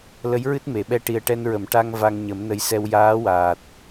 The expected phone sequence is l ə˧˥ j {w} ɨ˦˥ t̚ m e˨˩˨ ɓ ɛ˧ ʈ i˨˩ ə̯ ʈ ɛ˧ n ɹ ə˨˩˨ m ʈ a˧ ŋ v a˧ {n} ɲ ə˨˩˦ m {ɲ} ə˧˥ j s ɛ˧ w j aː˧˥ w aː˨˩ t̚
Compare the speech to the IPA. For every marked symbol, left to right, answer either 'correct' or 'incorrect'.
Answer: incorrect, incorrect, incorrect

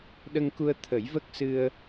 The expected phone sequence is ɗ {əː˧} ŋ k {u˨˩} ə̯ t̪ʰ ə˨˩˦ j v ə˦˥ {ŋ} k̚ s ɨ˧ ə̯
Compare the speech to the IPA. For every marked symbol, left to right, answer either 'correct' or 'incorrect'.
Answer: incorrect, incorrect, incorrect

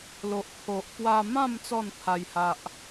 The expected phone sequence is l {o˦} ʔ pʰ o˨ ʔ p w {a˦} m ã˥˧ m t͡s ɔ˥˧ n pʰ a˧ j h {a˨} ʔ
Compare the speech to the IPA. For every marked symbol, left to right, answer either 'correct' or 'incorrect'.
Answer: incorrect, incorrect, incorrect

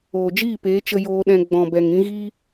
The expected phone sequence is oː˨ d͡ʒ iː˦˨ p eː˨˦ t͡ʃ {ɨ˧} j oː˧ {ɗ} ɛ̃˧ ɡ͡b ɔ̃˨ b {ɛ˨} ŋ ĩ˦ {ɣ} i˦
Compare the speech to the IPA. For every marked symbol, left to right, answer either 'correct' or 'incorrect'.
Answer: incorrect, correct, correct, correct

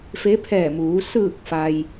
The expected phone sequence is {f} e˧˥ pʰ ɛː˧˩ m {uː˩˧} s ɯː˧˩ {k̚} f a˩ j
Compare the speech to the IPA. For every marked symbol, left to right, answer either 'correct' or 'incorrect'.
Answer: correct, correct, correct

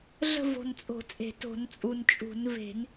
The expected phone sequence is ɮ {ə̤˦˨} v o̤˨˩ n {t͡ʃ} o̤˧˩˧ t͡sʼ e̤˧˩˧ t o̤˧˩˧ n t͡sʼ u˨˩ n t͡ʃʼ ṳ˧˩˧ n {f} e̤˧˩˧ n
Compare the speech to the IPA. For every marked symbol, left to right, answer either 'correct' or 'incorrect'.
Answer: correct, incorrect, incorrect

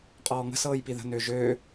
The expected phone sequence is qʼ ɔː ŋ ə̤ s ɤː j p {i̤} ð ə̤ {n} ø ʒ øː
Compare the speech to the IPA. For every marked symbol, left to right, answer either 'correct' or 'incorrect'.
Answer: incorrect, correct

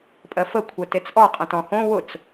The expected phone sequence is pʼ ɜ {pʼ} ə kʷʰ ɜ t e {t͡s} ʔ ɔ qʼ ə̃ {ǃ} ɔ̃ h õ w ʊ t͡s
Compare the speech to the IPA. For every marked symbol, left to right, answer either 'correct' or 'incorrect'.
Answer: incorrect, correct, incorrect

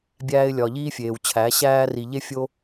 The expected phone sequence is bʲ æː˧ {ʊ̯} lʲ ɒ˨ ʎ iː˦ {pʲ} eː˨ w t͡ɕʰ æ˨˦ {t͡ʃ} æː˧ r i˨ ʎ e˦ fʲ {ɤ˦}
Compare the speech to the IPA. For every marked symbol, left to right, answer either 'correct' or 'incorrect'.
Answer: incorrect, incorrect, incorrect, incorrect

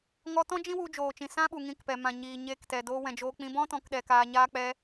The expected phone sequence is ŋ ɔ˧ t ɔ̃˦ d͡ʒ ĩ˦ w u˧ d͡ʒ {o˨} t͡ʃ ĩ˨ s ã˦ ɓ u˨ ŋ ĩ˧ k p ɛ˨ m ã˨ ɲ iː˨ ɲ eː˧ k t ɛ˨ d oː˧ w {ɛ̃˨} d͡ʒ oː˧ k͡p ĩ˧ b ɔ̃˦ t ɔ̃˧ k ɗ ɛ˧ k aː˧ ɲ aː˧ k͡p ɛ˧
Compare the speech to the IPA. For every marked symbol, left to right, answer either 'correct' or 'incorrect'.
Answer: incorrect, correct

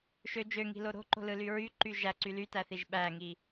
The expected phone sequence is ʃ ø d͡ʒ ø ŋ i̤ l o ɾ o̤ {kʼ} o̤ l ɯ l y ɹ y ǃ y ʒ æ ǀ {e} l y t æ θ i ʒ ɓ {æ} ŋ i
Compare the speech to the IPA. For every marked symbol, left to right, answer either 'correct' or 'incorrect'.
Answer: incorrect, incorrect, correct

